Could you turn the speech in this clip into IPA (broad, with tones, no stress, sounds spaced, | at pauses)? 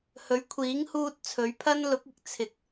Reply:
h ɵ˨˥ ɥ kʷʰ iː˨˥ ŋ h uː˧ t̚ t͡sʰ ɵ˨˥ ɥ pʰ ɐ˥ n l ʊ˨˥ k̚ ɪ˨ k̚ t͡sʰ ɪ˨ k̚